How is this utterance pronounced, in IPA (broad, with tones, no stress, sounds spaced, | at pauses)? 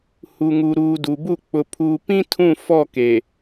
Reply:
h u˨ ŋ u˨ ɾ uː˨ d u˨ b u˦˨ k͡p ʊ˨ pʰ uː˨ p ĩ˦ tʰ ũ˦˨ f ɔ˦˨ k e˨